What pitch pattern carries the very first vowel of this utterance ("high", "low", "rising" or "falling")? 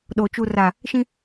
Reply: low